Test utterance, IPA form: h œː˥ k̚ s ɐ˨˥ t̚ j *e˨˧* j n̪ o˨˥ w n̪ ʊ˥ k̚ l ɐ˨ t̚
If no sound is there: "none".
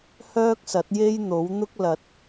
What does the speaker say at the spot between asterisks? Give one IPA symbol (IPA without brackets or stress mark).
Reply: e˥